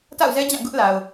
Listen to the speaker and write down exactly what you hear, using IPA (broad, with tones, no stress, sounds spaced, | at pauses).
t a̰˦˨ ʊ̯ z ɛ˦ d͡ʑ ã˦˨ ɡ ʊ˦ ʔ l a˨ ʊ̯